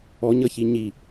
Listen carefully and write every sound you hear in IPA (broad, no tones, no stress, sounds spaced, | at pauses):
ɔ ɲ ʌ ç i ɲ i